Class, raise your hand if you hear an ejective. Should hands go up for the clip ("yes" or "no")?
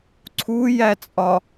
yes